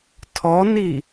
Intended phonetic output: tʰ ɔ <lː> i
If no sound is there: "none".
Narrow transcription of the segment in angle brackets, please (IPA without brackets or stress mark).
n